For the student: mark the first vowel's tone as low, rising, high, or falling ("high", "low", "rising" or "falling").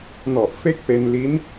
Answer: low